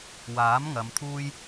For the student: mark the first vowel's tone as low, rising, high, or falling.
rising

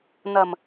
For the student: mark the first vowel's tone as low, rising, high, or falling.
low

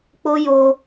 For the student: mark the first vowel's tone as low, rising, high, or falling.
high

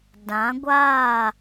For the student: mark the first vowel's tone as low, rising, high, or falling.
rising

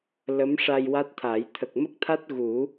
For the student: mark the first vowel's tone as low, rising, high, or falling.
rising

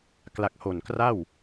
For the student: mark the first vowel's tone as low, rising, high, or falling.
low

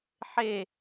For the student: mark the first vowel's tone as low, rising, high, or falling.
falling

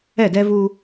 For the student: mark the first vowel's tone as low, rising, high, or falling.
falling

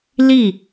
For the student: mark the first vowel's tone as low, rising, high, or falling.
falling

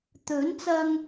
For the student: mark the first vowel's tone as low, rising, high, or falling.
rising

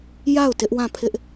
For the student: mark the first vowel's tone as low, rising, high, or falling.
falling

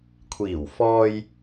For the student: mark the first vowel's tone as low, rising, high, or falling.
low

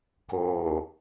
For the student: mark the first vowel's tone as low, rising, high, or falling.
low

